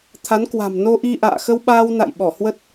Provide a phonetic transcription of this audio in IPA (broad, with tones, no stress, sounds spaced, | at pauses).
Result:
t̪ʰ a˨˦ n k w a̤˨˩ m n o˧ ʔ i˧ ʔ a̰ː˧˨ x ə˧ w ɓ aː˧ w n a̰˧˨ j ɓ ɔ˧˩ h w ə˦˥ t̚